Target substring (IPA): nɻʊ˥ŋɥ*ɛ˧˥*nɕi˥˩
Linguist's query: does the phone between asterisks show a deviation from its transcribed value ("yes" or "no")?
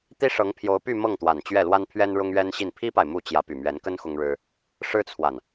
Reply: yes